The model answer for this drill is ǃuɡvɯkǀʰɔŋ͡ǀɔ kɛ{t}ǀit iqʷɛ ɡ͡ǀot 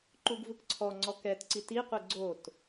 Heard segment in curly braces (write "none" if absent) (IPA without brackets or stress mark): t